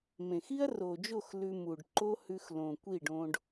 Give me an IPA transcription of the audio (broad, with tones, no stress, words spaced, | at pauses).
mẽ˨xi˦ɐ̯ro˨d͡ʒo˦˨x lʉ˧mu˨ɖ ǃo˦hʉ˧xlõ˨ kʷi˦˨ɖõ˧ɖ